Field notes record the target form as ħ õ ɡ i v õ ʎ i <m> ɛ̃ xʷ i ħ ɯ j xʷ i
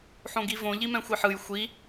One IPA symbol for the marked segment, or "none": m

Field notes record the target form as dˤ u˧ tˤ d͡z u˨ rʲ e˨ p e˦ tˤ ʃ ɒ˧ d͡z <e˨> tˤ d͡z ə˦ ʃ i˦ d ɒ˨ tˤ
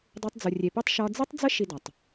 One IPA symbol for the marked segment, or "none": e˦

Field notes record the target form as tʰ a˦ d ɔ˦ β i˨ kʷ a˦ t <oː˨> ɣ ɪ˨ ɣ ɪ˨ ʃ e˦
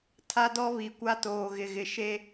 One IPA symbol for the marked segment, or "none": oː˨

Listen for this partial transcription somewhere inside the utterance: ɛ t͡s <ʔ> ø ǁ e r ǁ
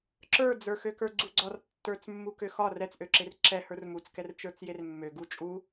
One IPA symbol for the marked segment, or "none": ʔ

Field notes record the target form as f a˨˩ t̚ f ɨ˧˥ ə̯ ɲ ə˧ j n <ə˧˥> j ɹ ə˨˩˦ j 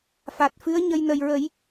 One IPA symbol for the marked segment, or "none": ə˨˩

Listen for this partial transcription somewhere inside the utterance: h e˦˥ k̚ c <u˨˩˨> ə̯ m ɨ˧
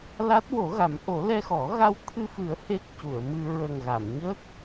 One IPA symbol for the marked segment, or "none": u˨˩˨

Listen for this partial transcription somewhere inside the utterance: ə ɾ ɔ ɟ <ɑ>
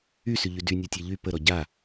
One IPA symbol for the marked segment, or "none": a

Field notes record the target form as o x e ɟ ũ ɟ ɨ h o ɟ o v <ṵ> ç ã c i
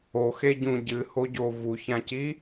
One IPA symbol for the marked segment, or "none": u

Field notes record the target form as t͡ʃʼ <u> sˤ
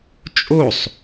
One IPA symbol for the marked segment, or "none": o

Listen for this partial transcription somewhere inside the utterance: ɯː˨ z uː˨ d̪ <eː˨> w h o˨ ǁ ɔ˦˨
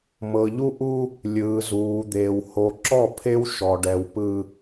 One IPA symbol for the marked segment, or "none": eː˨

